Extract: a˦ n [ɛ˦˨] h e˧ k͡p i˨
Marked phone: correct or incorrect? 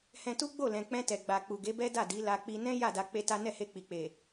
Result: correct